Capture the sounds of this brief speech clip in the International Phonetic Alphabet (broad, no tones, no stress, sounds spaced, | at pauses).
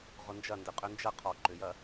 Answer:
ʁ ʊ n d͡ʒ ɐ n d ɪ qʼ ø n d͡ʒ ɐ qʰ ɔ ǃ ʏ j ɐ